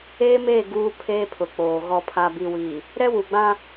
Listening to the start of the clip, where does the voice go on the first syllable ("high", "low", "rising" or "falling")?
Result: high